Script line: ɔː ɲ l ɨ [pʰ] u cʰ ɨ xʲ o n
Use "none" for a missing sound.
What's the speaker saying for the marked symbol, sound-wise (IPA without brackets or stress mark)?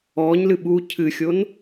ɓ